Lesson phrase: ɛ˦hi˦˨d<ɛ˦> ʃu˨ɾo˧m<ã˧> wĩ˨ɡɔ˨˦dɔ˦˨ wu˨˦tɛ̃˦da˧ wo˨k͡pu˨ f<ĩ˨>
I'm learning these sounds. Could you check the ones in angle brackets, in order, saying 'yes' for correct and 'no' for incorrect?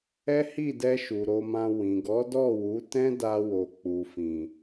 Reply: no, yes, yes

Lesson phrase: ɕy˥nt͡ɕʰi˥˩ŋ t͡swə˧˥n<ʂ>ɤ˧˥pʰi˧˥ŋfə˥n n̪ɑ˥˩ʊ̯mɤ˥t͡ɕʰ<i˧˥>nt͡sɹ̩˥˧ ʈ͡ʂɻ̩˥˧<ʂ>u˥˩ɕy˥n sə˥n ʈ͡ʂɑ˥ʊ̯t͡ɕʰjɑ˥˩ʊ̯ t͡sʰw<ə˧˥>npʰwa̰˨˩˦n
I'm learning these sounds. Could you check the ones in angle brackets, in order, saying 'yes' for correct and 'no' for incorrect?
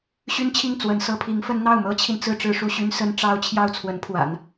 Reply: no, no, yes, yes

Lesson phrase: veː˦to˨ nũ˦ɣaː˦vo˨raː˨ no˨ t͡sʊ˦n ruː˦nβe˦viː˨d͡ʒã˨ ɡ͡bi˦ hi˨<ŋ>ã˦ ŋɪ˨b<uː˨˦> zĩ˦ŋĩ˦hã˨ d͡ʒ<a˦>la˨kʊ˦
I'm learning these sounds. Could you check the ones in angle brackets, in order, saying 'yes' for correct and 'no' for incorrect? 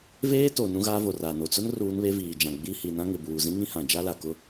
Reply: no, no, yes

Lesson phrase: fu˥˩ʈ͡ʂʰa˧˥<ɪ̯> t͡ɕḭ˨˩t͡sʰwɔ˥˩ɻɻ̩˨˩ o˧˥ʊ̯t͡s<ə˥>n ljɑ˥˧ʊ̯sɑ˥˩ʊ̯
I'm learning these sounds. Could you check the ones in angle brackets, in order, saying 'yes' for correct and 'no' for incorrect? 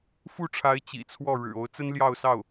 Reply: yes, yes

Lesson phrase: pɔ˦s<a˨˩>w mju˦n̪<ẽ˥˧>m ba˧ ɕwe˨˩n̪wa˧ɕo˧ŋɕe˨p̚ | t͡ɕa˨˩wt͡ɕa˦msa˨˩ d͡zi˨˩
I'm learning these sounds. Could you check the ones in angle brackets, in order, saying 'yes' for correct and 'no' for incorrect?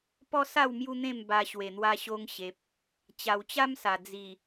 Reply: no, yes

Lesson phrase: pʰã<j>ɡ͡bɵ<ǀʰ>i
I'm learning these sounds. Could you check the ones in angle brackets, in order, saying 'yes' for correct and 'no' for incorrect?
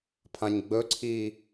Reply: no, yes

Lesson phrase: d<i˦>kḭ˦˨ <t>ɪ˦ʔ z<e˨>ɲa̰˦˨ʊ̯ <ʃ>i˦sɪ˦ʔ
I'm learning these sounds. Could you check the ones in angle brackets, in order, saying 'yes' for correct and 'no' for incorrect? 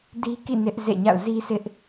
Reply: yes, no, no, no

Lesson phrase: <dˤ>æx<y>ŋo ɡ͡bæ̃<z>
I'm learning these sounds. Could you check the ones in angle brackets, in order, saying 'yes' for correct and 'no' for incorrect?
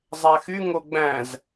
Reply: no, yes, yes

